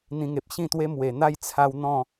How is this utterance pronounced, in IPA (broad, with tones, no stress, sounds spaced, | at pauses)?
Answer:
n̪ ĩ˧ ŋ e˨ p̚ ɕ ĩ˥˧ t̪ w e˦ m w e˨˩ n̪ a˥˧ j t͡sʰ a˧ w n̪ ɔ̃˥˧